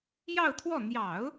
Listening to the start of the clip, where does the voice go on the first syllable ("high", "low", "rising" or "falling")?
falling